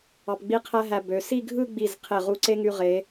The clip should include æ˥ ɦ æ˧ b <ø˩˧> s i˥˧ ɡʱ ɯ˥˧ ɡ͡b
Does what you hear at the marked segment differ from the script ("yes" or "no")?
no